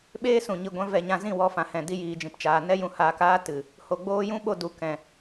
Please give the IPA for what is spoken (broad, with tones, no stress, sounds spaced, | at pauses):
ɓ eː˦ s ũ˨ ɲ i˨ ɡʷ ɛ̃˧ v ɛ˧ ɲ ã˧ z ĩ˦˨ w ɔ˧ f ã˨ h ɛ̃˨ d i˧ j iː˨ d͡ʒ ĩ˨ p t͡ʃ aː˨ n ɛ˦ j ũ˧ h aː˧ k aː˦ t ɨ˨ | h o˨ ɡ͡b oː˧ j ũ˦ ɓ o˧ d u˨ k ɛ̃˨